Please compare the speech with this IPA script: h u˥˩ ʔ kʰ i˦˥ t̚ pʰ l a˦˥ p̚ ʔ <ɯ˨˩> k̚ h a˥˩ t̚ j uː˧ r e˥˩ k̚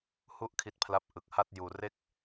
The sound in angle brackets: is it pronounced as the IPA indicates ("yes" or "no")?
yes